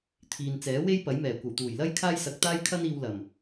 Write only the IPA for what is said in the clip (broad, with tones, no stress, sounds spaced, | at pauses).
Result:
t̪ʰ iː˨ n t͡s ɛː˨˥ w e˥ j p ɐ˨˥ j m ɛː˨˩ kʷ ɐ˨˩ w t̪ uː˨˩ j l ɐ˥ j kʰ aː˥ j s ɐ˧ k̚ t̪ aː˥ j kʰ ɐ˥ n iː˧ w l ɐ˨˩ m